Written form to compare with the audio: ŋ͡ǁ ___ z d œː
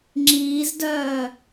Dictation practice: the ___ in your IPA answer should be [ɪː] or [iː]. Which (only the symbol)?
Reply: iː